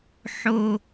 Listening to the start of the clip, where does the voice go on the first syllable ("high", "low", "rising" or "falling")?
low